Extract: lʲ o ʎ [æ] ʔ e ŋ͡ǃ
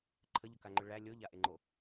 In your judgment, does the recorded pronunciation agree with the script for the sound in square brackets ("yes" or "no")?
no